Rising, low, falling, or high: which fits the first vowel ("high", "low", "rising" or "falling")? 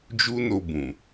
high